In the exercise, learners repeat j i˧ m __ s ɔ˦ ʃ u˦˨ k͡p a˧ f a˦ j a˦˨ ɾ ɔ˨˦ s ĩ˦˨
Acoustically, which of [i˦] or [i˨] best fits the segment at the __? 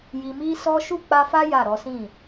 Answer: i˦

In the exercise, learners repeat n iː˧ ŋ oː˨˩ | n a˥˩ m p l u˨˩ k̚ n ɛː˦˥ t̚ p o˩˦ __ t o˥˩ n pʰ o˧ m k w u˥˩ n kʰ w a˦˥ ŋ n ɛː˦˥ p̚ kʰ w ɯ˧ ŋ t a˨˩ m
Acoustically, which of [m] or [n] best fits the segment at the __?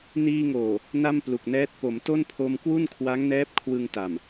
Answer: m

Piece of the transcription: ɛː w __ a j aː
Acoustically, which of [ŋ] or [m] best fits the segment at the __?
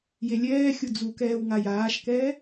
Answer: ŋ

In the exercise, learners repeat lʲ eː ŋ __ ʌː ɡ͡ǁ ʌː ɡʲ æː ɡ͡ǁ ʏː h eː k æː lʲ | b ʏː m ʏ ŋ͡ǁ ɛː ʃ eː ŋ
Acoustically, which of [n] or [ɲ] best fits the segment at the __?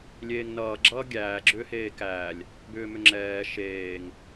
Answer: n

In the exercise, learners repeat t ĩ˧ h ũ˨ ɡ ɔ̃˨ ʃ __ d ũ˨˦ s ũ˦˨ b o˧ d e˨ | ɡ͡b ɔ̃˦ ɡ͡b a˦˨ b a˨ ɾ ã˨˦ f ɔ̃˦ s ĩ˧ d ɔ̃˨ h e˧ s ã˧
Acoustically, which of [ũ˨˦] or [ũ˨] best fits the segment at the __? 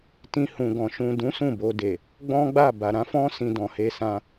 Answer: ũ˨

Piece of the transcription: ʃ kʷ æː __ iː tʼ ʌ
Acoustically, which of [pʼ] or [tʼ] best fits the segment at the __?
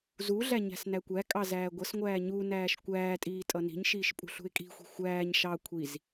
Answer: tʼ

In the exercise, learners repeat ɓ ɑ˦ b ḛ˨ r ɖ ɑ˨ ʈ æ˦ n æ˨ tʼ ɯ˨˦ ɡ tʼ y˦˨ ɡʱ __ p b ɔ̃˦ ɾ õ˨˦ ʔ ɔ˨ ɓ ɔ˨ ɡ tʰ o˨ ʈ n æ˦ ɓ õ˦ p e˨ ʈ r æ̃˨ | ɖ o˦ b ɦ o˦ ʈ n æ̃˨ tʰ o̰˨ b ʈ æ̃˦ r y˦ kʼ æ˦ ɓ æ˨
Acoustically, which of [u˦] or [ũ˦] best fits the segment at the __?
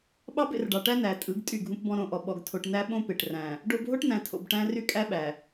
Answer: ũ˦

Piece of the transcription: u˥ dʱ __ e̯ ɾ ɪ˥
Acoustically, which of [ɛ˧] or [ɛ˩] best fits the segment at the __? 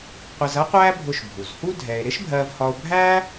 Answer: ɛ˧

